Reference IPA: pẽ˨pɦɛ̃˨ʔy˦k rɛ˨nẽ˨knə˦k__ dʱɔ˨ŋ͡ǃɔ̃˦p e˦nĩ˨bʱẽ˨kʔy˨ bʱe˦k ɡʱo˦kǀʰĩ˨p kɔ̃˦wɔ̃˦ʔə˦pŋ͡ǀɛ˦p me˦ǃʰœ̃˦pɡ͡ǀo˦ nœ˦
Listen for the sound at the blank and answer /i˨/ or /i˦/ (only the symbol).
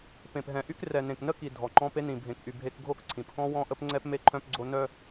i˨